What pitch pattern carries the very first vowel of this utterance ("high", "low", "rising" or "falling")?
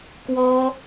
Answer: high